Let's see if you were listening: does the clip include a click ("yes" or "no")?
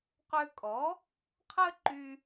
yes